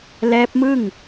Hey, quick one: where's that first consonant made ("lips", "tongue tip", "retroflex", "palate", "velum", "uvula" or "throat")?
tongue tip